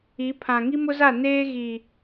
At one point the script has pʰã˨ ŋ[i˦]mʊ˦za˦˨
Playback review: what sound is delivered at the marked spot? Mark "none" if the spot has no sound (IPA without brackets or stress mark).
i˦